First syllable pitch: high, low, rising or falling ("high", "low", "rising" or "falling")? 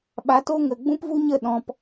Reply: rising